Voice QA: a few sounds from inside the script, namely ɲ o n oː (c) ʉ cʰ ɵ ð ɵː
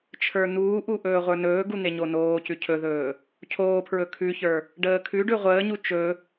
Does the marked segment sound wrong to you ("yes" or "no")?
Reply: no